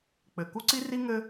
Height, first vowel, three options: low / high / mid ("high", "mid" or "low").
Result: mid